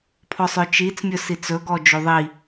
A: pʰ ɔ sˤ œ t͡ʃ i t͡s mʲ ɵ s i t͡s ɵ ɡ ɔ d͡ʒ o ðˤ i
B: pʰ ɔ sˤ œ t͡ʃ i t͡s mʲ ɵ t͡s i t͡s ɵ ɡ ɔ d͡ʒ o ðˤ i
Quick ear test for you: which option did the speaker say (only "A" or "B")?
A